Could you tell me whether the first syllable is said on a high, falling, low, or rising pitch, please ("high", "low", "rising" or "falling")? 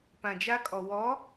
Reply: low